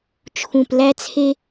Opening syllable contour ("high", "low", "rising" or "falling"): low